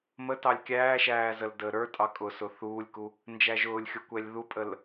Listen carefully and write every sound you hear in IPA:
m ə t ɑ lʲ kʲ æː ʃ æː z ə l d əː ɾ ə˞ tʼ ɑ kʼ ʊ s ʊ θ uː lʲ k u | n d͡ʒ æ ʒ ʊː lʲ xʲ ʊ kʷ ɛ lʲ ð u pʼ ə l

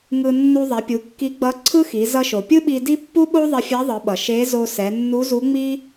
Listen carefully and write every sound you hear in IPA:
ŋ ɯ˧ nː u˧ ðˤ ɛ˩˧ pʲ u˩˧ kː i˧˥ ɡ͡b ʌ˧˥ ǀʰ ɯ˥ x i˩˧ z ʌ˧ ʃ o˩ pʲ ɯ˥ ɓ i˧ d i˥ pː u˥ ɓ o˥ ðˤ i˧ fʲ a˧˥ ðˤ ɯ˩˧ ɓ ʌ˩ ʃ e˧˥ z o˧ s ɛ˩˧ nː u˧˥ z u˧˥ ŋ͡m i˥

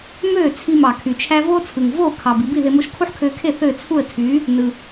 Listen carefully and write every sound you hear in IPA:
m øː˥˩ t͡sʰ i˧ m ɑ˩ kʰ y˩ t͡ʃʰ æ˥ v oː˥ t͡sʰ ɯ˩ ŋ v oː˥˩ kʰ ɑ˩ b i˧ b i˥˩ ð e˧ m o˧ ʃ kʰ u˥ ħ kʰ øː˧ kʰ e˥˩ θ ø˥˩ t͡sʰ u˥˩ ə̯ tʰ yː˩˥ | n ɯ˩

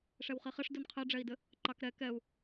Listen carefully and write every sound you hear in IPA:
ʂ ɛ w χ i χ ɘ ʂ d u n qʰ ɛ ɖ͡ʐ ɛ i̯ d ɘ | ǃ ɑ k ɾ ɛ k ɛ u̯

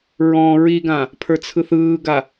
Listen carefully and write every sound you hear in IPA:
ɹ ɔ̃ ɹ i ɡ ã | pʰ ə˞ t͡sʰ ɯ θ ɯː ɡ a

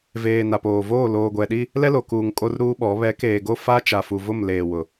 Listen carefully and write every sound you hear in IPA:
v eː˨ n a˨ p oː˨ v oː˦˨ l oː˨ ɡʷ ɛ˨ ɗ i˦ | l ɛ˦ l o˨ k uː˨ ŋ kʼ o˦ r ɾ uː˦ ɓ ɔ˨˦ β ɛ˨˦ k eː˨ ɡ o˦˨ f a˦ t͡ʃ a˨ f u˨ v ʊ˦˨ m l eː˨ w ʊ˨

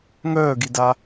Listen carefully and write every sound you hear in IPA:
ŋ œː ɡ i d a

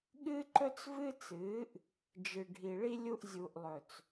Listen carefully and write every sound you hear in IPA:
ɠ ɨː˦ ǃ ɵ˦ t͡s v ɨ˦ t͡s ɨː˨˦ ʔ | d͡ʒ ɨ˨ ɖʱ i˨ ɭ i˦ lʲ u˦ ʔ zʲ u˨ ʔ lˠ ɵ˨ t͡s

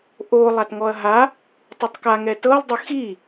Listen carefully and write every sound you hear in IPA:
ʔ o lˠ a t ŋ ɔ ɐ̯ ɦ a | tˤ u tˤ k a ŋ ɛ t ɤ lˠ dˤ ɯ x i

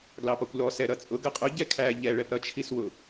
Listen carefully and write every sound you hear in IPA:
ɡ l ɑ p ɒ kʷ l ɔ s ɛ ɾ ʌ t͡sʼ ʊ ɡ ʌ qʼ ʊ ɟ ɛ kʰ æ ʎ ɛ ɭ ɛ p ɾ ʌ t͡ʃʰ i s w ʊ

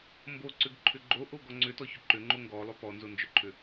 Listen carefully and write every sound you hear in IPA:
m b o ǀ ʏ ɡ ǃʰ ʏ ɡ͡ǃ o ʔ o ɡ ɔ ŋ͡ǀ ʏ t ɔ ç ʏ ǃ ʏ ŋ͡ǃ o ŋ ɡ ɔ lˠ ʏ p ɔ n z o n d͡ʒ ʏ ǃʰ ʏ

